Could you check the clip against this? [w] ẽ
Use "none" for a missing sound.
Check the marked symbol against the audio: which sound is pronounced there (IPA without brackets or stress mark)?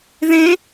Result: ð